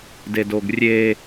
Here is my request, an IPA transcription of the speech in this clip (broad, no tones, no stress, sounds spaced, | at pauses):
d e d o ɡ rʲ e